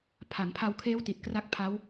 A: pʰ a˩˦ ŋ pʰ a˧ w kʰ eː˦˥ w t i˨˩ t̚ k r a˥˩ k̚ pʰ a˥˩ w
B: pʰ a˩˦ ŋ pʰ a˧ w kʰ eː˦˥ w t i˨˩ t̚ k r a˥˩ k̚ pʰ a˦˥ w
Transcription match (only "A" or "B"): B